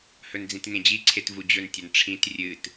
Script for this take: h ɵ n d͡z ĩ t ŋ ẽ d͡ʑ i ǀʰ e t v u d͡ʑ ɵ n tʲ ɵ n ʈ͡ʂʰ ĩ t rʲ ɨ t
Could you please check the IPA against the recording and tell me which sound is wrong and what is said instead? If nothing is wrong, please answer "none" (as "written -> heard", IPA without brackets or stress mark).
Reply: none